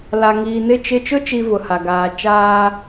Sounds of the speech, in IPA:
la˨ ŋiː˨nɪ˦˨t͡ʃɪ˦˨ t͡ʃʊ˦t͡ʃi˨ vʊ˨ha˨ ɡaː˨ t͡ʃaː˦

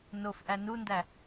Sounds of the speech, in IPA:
nofʔæ nundæ

